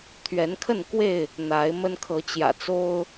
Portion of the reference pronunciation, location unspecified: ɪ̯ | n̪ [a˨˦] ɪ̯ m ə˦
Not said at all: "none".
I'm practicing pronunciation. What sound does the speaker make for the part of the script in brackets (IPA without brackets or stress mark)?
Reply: a˨˦